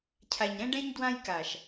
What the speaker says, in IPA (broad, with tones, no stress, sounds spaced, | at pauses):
cʰ a˨ ɲ ɾ ɛ̃˦ ɖ ɛ̃˦ ɲ d w ã˦ j k a˨ ʃ